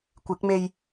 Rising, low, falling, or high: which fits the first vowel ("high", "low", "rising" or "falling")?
rising